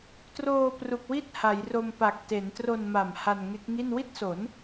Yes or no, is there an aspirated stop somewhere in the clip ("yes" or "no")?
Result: no